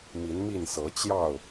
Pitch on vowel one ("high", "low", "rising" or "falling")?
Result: rising